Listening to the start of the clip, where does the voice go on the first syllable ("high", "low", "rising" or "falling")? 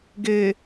low